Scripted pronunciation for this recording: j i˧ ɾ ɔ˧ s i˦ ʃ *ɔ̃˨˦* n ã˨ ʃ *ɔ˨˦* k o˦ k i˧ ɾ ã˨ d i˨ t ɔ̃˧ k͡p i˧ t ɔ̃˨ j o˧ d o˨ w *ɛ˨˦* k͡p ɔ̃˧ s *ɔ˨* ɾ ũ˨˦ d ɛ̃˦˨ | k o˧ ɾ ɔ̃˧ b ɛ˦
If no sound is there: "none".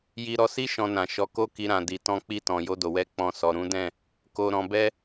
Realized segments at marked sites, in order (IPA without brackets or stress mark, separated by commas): ɔ̃˧, ɔ˨˦, ɛ˨˦, ɔ˨